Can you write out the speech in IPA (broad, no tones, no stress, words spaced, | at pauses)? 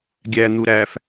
ɡʲæn̪u ɾæf